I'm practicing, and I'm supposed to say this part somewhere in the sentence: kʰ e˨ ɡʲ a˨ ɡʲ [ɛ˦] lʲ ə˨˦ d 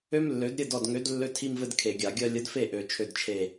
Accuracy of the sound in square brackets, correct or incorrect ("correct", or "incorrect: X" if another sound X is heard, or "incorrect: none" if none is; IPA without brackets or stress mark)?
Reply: incorrect: ɜ˦